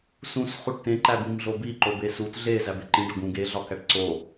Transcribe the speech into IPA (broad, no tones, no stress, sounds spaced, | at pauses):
s ũ s χ u ʈ t ẽ ǃ æ b ĩ m ɮ o b i ǃ o b e s u t ɮ e z æ b e ǃ ĩ ɖ ɒ ɡ ũ ɡ e ɮ ɒ k æ ʈ ǀ o